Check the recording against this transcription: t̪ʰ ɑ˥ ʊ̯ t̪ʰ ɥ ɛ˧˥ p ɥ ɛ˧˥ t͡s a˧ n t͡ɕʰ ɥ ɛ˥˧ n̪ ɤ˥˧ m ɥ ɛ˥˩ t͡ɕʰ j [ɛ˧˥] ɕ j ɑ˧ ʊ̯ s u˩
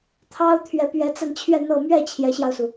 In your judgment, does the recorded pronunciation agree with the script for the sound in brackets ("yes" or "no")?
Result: yes